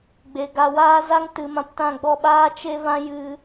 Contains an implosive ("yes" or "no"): yes